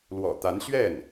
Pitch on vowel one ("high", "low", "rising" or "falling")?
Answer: low